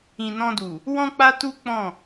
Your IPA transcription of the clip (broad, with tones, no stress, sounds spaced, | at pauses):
ĩ˨ n ɔ̃˧ d u˨ | w ɔ̃˦ k͡p a˦ t u˦ k͡p ɔ̃˦˨